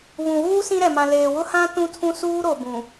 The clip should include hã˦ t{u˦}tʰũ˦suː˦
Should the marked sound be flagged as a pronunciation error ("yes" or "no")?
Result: yes